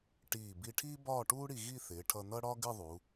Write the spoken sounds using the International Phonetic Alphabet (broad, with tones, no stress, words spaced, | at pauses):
ʈiː˧˩ bi˧ʈʰiː˥ bɒː˥˧ʈuː˥ɽi˧ ɣi˥˧ θɪː˩˧ʈʰʌ˧ n̪ʌ˥ɽɒ˥ɡɪ˥˧ ðˤu˩˧